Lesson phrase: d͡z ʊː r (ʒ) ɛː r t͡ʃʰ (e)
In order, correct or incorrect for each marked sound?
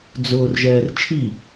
correct, incorrect

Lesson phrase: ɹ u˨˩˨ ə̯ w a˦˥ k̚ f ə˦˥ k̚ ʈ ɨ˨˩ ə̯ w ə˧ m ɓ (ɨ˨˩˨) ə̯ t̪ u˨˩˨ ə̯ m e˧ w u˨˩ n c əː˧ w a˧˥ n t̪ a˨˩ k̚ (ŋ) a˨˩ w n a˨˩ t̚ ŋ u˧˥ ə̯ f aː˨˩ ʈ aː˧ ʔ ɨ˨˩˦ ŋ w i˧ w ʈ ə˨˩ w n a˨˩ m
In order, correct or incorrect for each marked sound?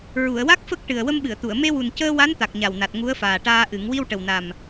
correct, incorrect

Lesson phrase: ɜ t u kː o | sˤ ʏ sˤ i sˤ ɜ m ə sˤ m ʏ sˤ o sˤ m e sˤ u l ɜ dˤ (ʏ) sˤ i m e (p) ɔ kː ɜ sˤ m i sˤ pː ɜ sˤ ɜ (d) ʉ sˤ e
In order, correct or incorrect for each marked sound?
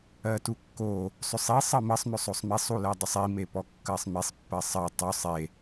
correct, correct, incorrect

